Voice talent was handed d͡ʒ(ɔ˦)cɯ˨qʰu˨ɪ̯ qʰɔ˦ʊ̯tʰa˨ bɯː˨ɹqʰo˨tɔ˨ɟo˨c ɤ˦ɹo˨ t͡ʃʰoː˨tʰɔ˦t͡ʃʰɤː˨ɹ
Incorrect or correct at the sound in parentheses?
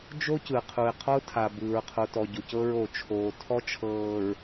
incorrect: o˦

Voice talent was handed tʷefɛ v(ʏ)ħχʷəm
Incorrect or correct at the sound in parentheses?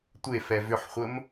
correct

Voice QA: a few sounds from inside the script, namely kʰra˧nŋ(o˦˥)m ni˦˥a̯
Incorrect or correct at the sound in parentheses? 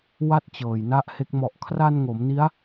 incorrect: o˩˦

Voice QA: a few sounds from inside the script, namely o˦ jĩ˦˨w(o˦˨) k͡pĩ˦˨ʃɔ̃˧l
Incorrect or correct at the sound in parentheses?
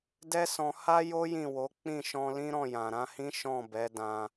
incorrect: o˨˦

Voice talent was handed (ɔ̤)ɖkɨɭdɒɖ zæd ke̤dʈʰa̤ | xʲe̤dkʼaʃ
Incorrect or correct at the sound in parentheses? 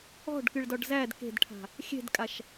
correct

